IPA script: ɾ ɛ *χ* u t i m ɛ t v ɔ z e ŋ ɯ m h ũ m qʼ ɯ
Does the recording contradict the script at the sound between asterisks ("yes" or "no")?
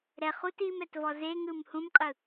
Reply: no